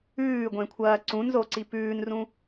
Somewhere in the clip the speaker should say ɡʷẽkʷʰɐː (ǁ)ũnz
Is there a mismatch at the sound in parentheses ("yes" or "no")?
yes